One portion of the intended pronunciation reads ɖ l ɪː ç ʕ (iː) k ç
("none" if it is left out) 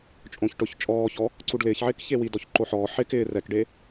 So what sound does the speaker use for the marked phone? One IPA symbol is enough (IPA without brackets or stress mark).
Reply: ɪː